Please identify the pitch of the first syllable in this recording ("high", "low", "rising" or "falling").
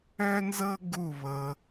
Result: high